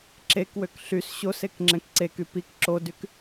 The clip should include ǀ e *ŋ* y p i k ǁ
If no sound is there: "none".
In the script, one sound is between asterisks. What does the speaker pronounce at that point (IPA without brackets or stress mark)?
k